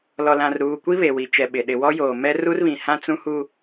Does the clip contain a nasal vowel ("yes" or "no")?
yes